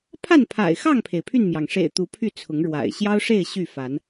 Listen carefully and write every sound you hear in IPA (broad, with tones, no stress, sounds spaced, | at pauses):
pʰ a˥˨ n pʰ a̰˨˩ ɪ̯ x ɑ˥˨ ŋ pʰ e˩ ɪ̯ pʰ y˥˨ n m j ɑ˩ ŋ ʂ ḛ˨˩ ɪ̯ t̪ u˨˦ pʰ y˥˨ t͡sʰ ʊ˨˦ ŋ ɻ w a̰˨˩ ɪ̯ ɕ j ɑ˦ ʊ̯ ʂ e˥˨ ɪ̯ ɕ y˥˨ f a˨˦ n